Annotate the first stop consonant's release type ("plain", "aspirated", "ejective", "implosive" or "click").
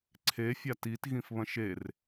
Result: click